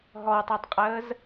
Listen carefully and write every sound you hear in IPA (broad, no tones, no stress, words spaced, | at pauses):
ɦɔwtˤatˤqʼəːz